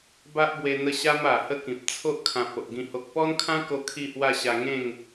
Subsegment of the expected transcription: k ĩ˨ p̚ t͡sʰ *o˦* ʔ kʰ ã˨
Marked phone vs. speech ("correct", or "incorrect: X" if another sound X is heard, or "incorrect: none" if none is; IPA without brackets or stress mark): correct